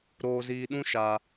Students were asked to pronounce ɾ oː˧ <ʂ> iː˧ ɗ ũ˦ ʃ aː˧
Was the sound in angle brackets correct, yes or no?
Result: no